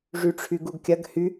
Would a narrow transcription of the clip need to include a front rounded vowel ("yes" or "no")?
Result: yes